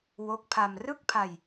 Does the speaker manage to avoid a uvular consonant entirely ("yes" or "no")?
yes